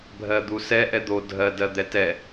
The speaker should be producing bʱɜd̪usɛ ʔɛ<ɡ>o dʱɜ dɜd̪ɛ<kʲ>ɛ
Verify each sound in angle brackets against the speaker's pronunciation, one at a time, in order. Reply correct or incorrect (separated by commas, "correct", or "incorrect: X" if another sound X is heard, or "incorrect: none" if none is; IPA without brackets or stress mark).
incorrect: d̪, incorrect: t